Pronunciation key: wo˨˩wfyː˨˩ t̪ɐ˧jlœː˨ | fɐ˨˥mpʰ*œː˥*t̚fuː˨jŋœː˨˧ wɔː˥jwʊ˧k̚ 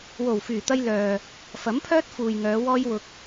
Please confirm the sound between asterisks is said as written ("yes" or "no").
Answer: yes